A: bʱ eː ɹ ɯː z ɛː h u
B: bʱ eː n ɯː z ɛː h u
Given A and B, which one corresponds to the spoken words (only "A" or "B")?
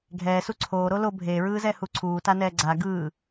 A